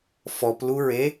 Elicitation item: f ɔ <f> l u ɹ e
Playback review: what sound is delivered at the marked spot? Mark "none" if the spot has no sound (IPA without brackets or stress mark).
p